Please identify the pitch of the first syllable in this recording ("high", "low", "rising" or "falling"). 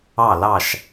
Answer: falling